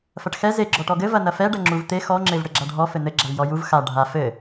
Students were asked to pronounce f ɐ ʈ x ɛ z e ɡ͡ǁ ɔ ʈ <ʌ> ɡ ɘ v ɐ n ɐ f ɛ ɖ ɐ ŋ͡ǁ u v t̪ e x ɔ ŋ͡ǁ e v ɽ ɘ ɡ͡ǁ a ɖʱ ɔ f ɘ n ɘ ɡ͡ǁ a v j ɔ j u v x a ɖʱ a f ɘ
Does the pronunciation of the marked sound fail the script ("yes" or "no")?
yes